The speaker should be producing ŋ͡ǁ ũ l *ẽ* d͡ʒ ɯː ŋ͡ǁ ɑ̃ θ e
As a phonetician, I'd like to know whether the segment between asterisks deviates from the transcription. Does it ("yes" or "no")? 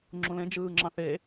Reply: no